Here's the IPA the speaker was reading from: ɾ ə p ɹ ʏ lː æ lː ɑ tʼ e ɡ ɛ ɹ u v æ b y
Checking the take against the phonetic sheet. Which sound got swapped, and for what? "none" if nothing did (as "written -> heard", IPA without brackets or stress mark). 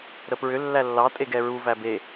y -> e